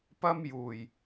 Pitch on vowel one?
high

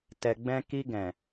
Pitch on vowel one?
low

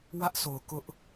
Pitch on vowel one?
high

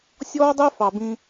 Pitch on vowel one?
high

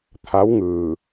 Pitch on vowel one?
rising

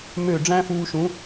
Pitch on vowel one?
falling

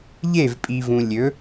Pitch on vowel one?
falling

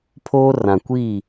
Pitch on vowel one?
high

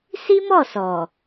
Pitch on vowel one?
high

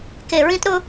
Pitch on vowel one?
low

